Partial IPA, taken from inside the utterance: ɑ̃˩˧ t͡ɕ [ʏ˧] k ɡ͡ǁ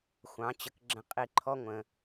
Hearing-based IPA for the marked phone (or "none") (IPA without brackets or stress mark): ə˧